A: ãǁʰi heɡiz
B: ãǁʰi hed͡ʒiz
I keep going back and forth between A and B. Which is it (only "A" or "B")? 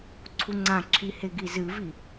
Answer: A